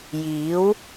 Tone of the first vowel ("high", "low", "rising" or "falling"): rising